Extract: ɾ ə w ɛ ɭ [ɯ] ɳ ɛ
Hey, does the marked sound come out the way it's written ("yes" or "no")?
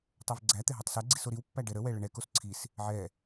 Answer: no